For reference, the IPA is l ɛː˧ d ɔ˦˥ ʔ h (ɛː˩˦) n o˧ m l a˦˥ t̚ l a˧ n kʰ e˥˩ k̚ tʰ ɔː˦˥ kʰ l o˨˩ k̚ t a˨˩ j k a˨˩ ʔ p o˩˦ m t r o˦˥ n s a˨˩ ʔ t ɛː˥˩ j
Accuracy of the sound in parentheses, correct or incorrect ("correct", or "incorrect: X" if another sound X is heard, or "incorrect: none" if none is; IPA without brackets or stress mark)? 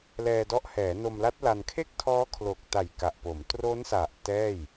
correct